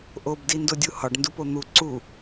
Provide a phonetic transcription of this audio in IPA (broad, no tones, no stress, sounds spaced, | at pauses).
ʔ o b d i n d o dʲ u h ɒ ɖ n d u p o n̪ u ǀ u